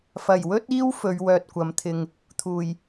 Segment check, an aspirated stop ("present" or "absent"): present